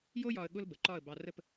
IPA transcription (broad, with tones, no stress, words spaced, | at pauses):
jo˥jɒ˧ə̯ ɠʊ˥lbə˩˧ǃɒ˥˧ə̯ bɑ˧rə˥˧p